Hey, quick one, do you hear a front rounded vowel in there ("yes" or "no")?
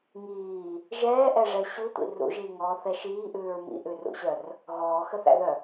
yes